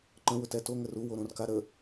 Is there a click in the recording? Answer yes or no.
yes